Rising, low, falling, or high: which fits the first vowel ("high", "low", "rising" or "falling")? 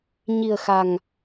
low